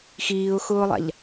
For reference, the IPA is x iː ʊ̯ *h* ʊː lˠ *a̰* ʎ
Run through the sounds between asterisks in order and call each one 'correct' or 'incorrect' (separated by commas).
incorrect, correct